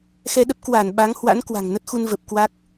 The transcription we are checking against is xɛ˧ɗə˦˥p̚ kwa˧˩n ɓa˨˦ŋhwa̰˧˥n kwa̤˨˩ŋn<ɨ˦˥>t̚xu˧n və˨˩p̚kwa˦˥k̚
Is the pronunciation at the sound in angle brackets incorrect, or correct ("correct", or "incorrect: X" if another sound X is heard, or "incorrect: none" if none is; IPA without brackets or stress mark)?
incorrect: ə˦˥